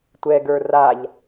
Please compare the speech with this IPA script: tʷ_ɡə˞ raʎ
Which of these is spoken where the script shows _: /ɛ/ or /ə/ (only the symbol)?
ɛ